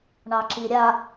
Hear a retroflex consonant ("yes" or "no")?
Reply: yes